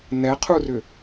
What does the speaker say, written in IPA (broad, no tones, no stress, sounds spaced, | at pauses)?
n ɛ qʰ u r ʏ